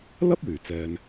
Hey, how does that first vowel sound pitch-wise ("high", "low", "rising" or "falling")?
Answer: high